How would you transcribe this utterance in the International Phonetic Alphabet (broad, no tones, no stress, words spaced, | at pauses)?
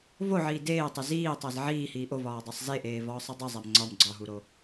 voʕiː deːtˤe ziːtˤæz ʕiːhiː ʔovɒːdˤæsˤ zeʔeːvɒːsˤi dˤizˤæm ŋ͡ǀɒm ɡ͡ǀɒɦuɾo